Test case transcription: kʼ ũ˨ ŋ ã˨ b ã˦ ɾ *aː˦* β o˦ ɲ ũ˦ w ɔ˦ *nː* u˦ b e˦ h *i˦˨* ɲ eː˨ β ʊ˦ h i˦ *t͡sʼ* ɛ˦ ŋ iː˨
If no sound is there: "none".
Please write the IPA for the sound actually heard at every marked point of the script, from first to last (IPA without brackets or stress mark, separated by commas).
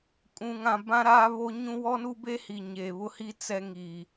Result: aː˦, n, i˨, t͡s